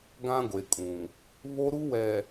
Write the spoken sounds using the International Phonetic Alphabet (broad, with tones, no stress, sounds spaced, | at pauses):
ɡ ã˦ ɡʷ e˨ kʼ ũ˨ | β o˦ ɾ u˦ w ɛ˨